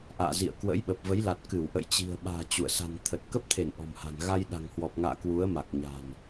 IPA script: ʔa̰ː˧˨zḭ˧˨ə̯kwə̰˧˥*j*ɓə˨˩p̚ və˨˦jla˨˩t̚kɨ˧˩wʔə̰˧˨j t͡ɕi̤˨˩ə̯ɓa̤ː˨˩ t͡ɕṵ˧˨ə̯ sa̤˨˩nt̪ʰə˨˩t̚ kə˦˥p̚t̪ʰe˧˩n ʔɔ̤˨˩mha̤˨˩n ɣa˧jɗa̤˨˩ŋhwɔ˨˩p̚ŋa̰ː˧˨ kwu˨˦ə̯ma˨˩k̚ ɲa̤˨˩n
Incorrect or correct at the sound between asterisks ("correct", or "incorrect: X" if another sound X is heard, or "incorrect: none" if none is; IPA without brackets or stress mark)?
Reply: correct